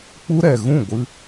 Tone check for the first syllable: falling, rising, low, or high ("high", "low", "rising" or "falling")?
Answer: high